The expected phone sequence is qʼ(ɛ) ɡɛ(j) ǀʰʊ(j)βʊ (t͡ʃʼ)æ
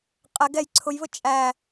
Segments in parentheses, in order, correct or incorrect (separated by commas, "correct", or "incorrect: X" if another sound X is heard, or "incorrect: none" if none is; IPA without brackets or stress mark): correct, correct, correct, correct